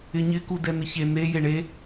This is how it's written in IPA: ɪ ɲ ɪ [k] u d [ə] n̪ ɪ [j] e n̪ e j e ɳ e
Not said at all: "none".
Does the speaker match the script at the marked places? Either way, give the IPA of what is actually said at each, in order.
k, ɛ, ç

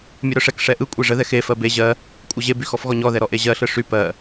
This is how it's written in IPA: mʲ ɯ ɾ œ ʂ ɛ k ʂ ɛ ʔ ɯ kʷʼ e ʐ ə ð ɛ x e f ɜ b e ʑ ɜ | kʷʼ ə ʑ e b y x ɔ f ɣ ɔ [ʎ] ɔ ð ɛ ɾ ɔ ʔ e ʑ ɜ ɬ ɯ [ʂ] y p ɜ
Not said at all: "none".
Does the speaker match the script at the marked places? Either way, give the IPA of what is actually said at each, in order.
ɲ, ʂ

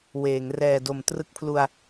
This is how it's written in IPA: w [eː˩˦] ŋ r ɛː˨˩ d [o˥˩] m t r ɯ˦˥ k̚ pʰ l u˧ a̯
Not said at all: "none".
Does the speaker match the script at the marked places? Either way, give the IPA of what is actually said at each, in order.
eː˩˦, o˩˦

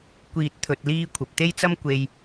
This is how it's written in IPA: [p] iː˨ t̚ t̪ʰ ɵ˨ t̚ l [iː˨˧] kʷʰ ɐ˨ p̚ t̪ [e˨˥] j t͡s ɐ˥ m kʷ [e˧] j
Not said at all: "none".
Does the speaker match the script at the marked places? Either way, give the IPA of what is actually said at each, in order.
kʷ, iː˧, e˥, e˨

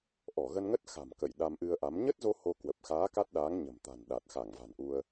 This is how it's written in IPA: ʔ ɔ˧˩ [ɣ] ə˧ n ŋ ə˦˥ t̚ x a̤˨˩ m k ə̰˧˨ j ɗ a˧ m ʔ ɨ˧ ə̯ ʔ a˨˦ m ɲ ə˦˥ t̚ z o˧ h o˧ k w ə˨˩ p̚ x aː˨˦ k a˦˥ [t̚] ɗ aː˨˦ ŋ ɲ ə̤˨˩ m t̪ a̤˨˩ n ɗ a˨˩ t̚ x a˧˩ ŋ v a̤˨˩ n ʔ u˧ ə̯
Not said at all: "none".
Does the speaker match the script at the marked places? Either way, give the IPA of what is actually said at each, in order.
ɣ, t̚

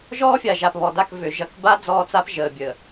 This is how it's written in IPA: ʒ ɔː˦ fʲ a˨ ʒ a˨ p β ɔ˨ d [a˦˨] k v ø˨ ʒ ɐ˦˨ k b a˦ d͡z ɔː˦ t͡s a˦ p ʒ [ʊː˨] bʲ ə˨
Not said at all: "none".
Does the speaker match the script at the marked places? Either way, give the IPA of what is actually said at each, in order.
a˦˨, əː˨

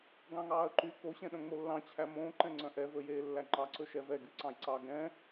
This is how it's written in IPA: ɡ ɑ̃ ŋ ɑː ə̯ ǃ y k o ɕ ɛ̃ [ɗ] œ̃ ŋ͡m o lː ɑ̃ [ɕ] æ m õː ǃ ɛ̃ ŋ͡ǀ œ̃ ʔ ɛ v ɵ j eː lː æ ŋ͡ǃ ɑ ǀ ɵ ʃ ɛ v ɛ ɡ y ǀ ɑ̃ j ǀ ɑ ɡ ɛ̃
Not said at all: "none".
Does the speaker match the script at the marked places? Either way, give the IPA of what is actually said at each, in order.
ɗ, t͡ɕʰ

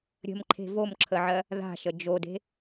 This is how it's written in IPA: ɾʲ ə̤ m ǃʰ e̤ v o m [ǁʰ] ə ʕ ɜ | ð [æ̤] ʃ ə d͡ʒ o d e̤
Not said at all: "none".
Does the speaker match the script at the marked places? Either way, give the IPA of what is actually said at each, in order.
ǁʰ, a̤

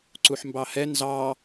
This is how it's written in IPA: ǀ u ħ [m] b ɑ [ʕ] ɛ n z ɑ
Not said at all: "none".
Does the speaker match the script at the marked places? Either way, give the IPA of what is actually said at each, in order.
m, h

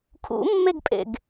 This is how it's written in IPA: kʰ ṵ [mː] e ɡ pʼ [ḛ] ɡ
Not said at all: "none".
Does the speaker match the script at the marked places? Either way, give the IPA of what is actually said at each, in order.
mː, ḛ

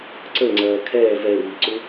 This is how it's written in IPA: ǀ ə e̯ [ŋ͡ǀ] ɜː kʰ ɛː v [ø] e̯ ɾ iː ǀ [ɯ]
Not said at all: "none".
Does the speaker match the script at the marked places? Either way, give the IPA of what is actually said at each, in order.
ŋ͡ǀ, ɛ, u

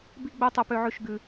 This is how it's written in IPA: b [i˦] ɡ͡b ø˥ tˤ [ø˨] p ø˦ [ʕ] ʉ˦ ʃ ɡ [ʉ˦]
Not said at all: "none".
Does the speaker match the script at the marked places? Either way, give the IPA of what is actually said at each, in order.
i˥, ø˦, ʕ, ʉ˦

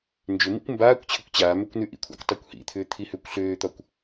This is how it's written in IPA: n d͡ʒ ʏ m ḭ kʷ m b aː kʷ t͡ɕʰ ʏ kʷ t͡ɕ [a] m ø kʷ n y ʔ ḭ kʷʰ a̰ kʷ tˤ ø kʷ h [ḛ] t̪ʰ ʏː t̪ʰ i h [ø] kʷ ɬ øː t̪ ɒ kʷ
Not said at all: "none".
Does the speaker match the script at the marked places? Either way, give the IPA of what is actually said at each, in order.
aː, ḭ, ø

